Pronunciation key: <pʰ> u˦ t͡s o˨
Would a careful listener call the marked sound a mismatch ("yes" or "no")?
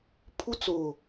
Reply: no